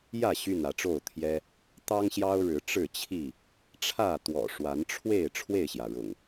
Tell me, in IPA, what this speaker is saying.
jä˥˨ ɕy˥˨nä˨˦ʈ͡ʂo˥˨ʊ̯t̪ʰjɛ˦ | t̪ɑ˦ŋɕjɑ˦ʊ̯ɻɻ̩˨˦ ʈ͡ʂɻ̩˥˨t͡ɕʰi˥˨ | ʈ͡ʂʰä˥˨t̪wɔ̰˨˩ʂwa˨˦nʈ͡ʂʰwe˥˨ɪ̯ ʈ͡ʂʰwe˥˨ɪ̯ɕjä˩ɻʊ̰˨˩ŋ

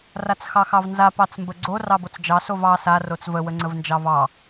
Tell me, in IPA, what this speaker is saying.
rat͡sxɑxɑvnza pɑt͡smbəɡ͡ǀo rɑbot͡sd͡ʒɑ sovɑ sa rot͡svə wəŋ͡ǀəvnd͡ʒɑvɑ

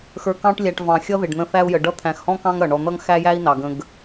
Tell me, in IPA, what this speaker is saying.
xə˞˨kɑ̃˦ʈlʲæ˨ʈ vɑ̃˩xʲʌ˦ðɪ˩ɖ n̪ə̃˦θæ˥u̯jə˨ɖʌ˥ t̪ʰæ̃˨xhɔ̃˥kɑ̃˦ŋ ɾʌ˩ɳɔ˨n̪ʌ˥ŋ xæ˥jæ˥i̯nɑ˩ɡə̃˨ɡ

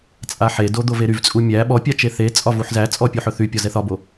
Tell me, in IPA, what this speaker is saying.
t͡sʼaħedo d̪oveɾyvt͡sʼu mʲæ ɓɔpʲa t͡ʃeθet͡sʼɒ vuħzæt͡sʼɔ pʲuħɵθypʲɒ zɛθɒbo

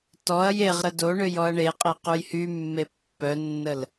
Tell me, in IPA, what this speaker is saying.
tɔɐ̯ jeʁɾə do ɳøjɔɐ̯ɳeqʼe qujhymːe pːœnːəl

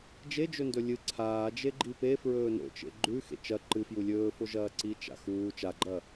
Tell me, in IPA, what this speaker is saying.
d͡ʒed͡ʒɵndɵ lʲɨ ǀʰaː d͡ʒeɡ͡ǃipe fɹɵːno̰t͡ʃḛ ɡ͡ǃʉ xḛt͡ʃɐ ǃɨ fjulʲɵː foʒɐːǀi t͡ʃa̰xuː t͡ʃaɡ͡ǃɐː

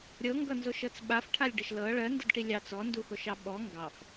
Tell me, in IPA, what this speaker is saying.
ɾʲɤŋɡʌnzoʃɤt͡s ɓafʈʰalʲɖəʃ lɤ ɭɜndədʈi lʲɑt͡s ɔnduxoʃɑ ɓɔ ŋɡɑf

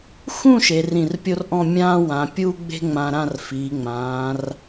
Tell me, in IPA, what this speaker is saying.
xũ˥˧ ʃe˩˧rĩ˧˩rpʲo˥rʔɔ̃˥˧ mʲãː˥wã˩˧ pʲuː˥ɡ͡be̤˥ ŋ͡mã˧ ɾã˥˧rfiː˩˧ŋ͡mãː˩˧r

